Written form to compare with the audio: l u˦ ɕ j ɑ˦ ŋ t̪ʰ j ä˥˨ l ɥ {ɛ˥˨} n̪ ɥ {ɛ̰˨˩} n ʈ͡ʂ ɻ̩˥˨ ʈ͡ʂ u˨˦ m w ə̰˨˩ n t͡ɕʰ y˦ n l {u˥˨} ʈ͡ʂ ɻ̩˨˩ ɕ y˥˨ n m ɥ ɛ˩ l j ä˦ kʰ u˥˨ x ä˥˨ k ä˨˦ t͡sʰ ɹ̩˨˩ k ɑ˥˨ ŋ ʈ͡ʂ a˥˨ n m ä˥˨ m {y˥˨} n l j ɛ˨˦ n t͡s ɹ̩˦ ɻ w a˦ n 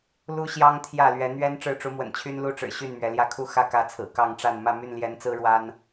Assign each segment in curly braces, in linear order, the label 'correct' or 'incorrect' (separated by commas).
incorrect, incorrect, correct, correct